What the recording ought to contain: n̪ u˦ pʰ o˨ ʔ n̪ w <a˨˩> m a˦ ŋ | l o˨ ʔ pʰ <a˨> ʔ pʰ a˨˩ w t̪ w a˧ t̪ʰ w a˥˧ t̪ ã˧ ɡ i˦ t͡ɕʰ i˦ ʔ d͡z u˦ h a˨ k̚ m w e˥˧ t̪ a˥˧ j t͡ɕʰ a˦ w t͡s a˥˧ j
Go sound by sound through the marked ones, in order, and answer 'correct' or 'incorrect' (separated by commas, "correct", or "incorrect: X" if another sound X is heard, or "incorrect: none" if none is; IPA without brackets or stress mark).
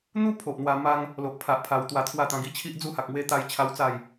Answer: incorrect: a˧, correct